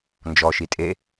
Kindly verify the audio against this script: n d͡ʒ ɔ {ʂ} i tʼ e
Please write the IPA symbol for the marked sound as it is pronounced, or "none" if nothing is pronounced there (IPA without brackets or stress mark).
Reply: ʃ